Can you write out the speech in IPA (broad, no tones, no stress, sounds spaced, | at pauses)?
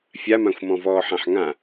fʲ a m ã xʷ m ɔ̃ v ɔː ħ ã ħ ŋ ã